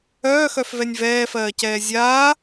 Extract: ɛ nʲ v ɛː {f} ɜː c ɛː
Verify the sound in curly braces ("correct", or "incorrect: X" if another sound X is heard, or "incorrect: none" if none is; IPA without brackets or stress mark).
correct